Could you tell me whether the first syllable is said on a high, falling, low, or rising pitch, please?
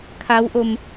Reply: rising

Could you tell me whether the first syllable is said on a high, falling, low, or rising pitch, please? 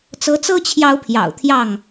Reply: rising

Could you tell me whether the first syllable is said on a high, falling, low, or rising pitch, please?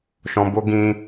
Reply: low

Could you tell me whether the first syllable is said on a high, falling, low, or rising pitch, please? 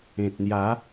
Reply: low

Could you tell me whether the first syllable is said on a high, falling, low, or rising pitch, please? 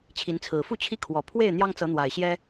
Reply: rising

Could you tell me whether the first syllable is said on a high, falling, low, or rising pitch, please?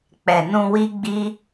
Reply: low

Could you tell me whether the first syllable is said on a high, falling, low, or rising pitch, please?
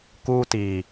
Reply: high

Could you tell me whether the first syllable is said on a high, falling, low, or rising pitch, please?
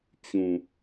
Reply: low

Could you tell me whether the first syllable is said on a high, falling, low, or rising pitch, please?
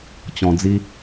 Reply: low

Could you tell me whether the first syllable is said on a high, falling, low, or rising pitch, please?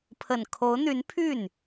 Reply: low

